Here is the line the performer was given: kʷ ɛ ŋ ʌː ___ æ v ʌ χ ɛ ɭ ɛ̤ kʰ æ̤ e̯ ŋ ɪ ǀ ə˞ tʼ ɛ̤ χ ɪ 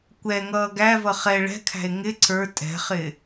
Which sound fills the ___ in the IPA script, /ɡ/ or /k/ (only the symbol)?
ɡ